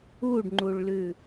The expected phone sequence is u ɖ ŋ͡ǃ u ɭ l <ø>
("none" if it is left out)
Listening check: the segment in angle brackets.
ʉ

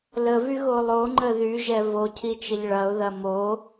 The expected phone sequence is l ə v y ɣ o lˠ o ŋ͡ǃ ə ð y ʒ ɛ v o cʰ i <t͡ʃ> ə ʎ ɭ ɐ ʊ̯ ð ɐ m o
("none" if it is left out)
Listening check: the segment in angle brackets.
t͡ʃ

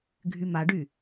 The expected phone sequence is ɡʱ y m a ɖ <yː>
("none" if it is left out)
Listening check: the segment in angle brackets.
y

